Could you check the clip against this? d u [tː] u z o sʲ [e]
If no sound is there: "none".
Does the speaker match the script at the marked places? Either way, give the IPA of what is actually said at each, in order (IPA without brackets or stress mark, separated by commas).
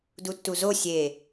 tː, e